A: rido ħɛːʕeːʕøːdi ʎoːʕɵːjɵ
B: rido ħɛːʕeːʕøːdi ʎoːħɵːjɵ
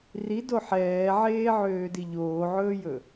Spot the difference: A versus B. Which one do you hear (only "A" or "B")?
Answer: A